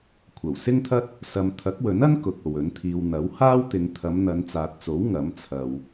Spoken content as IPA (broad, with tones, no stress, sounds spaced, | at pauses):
kʷʰ ɐ˨˩ w s ɪ˥ ŋ t̪ʰ ɐ˥ t̚ | s ɐ˧ m t̪ʰ ɐ˨˥ k̚ w ɵ˨˥ n ɐ˥ n k ʊ˨ k̚ o˨ w ɵ˨˥ n t̪ʰ iː˧ w n̪ ɐ˨˥ w h aː˥ w t̪ ɪ˨˧ ŋ t̪ʰ ɐ˨˧ m n̪ ɐ˨˧ n t͡s aː˨ t̚ t͡s o˨˥ w ŋ ɐ˨˥ m t͡sʰ ɐ˨ w